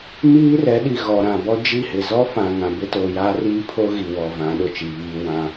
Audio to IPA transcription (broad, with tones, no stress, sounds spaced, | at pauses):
m iː˦ r ɛ˨˦ ɗ i˨ ɣ ɔ˨ ɾ ã˨ b ɔ˦ d͡ʒ i˦˨ h ɪ˨ z ɔ˦ f ã˨ ŋ ã˨ b ɪ˦ t o˨ j aː˦ r iː˦ pʰ o˦ ɣ i˨ w ɔ˨ v ã˨˦ ɗ ʊ˨ t͡ʃ i˨ β iː˦ w ã˦